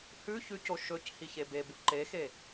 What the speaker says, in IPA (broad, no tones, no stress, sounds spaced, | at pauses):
h ʉ ç ʉ c o ʃ ɵ c h i ç e b e b u ǃ e x e